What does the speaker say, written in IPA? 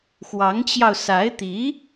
x w ɑ˧˥ ŋ t͡ɕ j ɑ˧ ʊ̯ s a˧˥ ɪ̯ t̪ i˧˥

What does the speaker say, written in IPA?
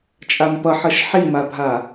t͡ʃʼ a m p ʌ ħ ʌ ʃ ħ i m a bʱ a

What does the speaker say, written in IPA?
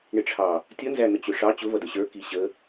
ɳ ɪ ʈ͡ʂʰ ɑ | tʲ ʌ n z æ n̪ ə t͡ɕ ʊ ʂ ɑ t͡ɕ ʊ v ʌ d ə ɕ ə˞ k i ɕ ə

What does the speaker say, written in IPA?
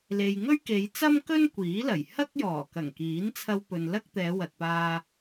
l e˨ j ŋ ɵ˥ ɥ k e˨˧ j t͡s ɐ˥ m k ɵ˥ n kʷ iː˨˥ l ɐ˨˩ j h ɐ˥ k̚ j ɔː˨˩ k ɐ˨˩ ŋ k iː˨˥ n t͡sʰ ɐ˧ w p ɵ˨ n l ɐ˥ k̚ t̪ ɛː˨˧ w ɐ˨ t̚ p aː˧

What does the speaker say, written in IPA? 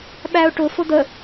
ɓ æ ʊ̯ ʈ ʊ f ʊ d̪ ə

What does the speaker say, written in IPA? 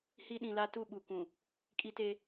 h i˦ ɗ ĩ˨ l a˦ t u˦˨ ɓ u˨ kʷ ũ˨ | kʼ i˦ t e˦

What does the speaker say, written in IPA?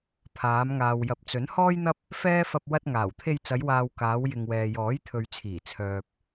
pʰ aː˨˧ m ŋ aː˨ w j ɐ˨˥ p̚ t͡s ɵ˨˥ n h ɔː˥ j n̪ ɐ˥ p̚ | f ɛː˥ f ɐ˧ p̚ w ɐ˧ t̚ ŋ aː˨˩ w t̪ʰ e˧ j t͡s ɐ˨˧ j w aː˨ w k aː˨˧ w j ɪ˨ ŋ w ɛː˨ j ɔː˨˥ j t̪ʰ ɵ˨ ɥ t͡sʰ iː˨˩ t͡sʰ œː˨ p̚

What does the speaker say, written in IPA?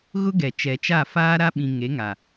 ɣ ʊ˦ ɡ ɛ˨ t͡ʃ ɛ˨ t͡ʃ a˦˨ f aː˦ ɾ a˦ ɓ ĩ˨ ŋ e˨˦ ŋ a˨

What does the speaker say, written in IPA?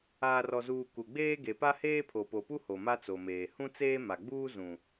aː˨ r ɔ˨ z uː˨ k u˨ ɡ͡b eː˦ ɡ e˨ p a˦ h eː˦ pʰ o˨ p o˨ p u˦ h o˨ m a˦ t͡s o˨ m eː˨ h ũ˦ t͡s eː˦ m a˨ ɡ͡b uː˦ z ũ˨

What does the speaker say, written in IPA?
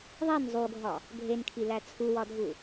ðˤ i n zˤ u ɡʱ ɒ | ɡʱ e n kʰ i l æ t͡sʰ u w ɒ dʱ u

